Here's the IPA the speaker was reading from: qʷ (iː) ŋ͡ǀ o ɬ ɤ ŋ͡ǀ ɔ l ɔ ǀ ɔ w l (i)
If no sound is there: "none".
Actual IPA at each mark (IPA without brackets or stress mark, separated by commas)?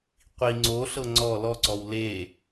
i, e